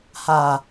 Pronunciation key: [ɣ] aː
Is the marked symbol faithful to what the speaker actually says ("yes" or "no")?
no